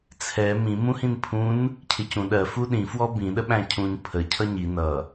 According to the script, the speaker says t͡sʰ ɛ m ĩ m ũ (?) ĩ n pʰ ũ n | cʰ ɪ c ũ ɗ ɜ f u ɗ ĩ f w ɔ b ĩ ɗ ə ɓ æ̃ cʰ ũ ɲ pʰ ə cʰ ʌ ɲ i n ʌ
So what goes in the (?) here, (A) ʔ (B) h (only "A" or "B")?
B